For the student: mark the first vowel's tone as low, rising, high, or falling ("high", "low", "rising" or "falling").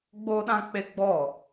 high